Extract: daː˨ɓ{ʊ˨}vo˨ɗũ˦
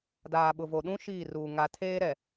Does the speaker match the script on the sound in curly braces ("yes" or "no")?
yes